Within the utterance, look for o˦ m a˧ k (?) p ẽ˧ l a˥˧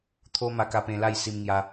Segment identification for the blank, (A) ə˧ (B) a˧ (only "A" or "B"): B